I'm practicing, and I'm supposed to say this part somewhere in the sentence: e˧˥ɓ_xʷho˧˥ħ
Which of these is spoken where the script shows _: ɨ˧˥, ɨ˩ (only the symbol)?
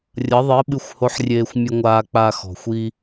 ɨ˧˥